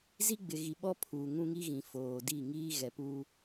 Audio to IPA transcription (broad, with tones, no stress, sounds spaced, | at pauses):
z i˦ ɡ͡b ɪ˨ ɣ i˨ ɓ ɔ˦ pʰ uː˨ ŋ ũ˦ ŋ i˦ ɣ ĩ˨ f oː˨ d i˦˨ ŋ iː˦ ɣ ɛ˨ p uː˦